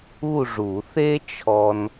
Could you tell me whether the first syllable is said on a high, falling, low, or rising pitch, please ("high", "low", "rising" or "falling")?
falling